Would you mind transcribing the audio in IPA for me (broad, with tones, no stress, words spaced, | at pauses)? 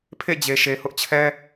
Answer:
pʰḛ˦˨d͡ʑe˨ ʃe˨hʊ˦ʔt͡ɕʰɛ˦